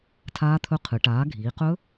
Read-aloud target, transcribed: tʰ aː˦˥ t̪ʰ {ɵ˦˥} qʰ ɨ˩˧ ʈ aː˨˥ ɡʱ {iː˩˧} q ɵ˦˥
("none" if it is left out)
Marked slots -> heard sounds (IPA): ɵ˦˥, iː˩˧

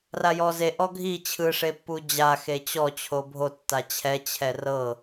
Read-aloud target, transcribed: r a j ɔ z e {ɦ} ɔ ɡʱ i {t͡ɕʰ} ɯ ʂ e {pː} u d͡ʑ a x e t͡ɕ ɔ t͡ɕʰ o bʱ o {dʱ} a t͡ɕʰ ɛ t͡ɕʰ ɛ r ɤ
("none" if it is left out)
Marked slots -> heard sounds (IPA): ʔ, t͡ɕʰ, pː, tː

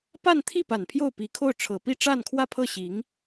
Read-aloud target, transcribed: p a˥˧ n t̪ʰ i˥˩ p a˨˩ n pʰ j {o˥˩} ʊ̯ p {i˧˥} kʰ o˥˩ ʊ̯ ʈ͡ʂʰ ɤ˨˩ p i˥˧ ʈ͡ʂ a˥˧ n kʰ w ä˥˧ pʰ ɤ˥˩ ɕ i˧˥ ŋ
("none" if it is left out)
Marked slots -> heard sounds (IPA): o˥˩, i˨˩

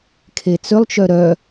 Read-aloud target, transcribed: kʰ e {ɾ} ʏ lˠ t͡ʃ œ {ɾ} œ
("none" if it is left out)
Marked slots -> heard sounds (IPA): t͡s, ɾ

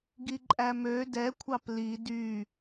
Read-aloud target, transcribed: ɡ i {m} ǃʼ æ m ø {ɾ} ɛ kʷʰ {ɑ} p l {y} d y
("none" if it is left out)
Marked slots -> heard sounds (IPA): none, d, ɑ, i

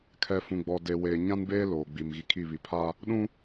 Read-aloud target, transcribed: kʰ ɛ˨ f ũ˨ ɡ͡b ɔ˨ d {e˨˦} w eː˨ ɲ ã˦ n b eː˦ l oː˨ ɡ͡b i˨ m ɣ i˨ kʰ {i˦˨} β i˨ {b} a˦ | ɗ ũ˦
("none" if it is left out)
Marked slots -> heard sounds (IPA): e˨, i˦˨, pʰ

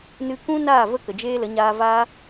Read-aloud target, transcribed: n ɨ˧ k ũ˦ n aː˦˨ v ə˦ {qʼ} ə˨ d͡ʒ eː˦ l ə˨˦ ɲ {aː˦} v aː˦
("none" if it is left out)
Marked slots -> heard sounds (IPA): k, aː˧

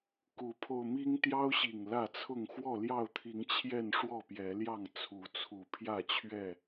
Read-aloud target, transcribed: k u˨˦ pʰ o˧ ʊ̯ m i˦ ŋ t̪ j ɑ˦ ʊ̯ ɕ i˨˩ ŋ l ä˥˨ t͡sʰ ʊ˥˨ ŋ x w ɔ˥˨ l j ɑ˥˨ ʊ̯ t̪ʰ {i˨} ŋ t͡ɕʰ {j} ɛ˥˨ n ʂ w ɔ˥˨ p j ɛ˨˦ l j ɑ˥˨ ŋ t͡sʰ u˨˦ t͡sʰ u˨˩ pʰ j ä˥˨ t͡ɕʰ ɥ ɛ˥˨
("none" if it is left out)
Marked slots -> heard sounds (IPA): i˨˦, j

